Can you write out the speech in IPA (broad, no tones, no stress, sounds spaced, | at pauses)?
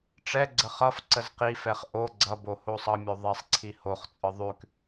ʈ͡ʂ ɛ ɡ͡ǀ ə χ ʌ f ǀ ə z q i f ɛ χ ʔ o ɡ͡ǀ ʌ b o h o sˤ ʌ mʲ o ðˤ ɛ sˤ ǀʰ i h o χ t͡sʼ ɯ ðˤ ʉ k